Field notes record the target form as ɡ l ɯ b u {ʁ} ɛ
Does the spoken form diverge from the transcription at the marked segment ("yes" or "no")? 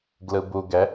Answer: yes